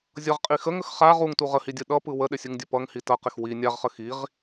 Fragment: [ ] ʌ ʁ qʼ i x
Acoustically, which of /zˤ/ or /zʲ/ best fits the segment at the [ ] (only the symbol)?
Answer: zʲ